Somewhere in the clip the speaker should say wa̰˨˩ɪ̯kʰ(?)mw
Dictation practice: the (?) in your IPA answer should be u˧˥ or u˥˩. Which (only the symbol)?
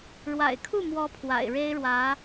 u˥˩